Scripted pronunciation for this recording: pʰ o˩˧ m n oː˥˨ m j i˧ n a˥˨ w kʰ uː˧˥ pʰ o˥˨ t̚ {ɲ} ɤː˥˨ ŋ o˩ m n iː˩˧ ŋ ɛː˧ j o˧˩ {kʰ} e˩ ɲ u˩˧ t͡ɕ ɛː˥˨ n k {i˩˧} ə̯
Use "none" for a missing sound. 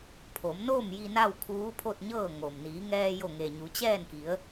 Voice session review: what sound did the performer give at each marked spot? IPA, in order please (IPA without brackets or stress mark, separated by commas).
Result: ɲ, ŋ, i˩˧